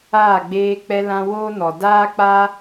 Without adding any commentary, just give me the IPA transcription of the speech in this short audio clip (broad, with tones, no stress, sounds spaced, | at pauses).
aː˦˨ ɡ͡b eː˧ k͡p ɛ˧ l ã˧ w oː˦ n ɔ˨ d aː˦ k͡p a˦